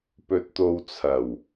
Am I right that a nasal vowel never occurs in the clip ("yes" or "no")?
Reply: yes